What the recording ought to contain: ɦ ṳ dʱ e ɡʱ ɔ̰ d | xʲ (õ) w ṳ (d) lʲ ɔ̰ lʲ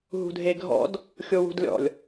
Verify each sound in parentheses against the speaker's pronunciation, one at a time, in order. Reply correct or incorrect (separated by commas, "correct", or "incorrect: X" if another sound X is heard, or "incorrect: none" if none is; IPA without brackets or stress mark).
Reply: incorrect: o, correct